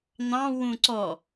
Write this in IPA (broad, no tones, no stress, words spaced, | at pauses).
n̪ɑ̃wũ ǀɔ